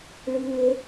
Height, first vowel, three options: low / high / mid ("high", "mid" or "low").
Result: high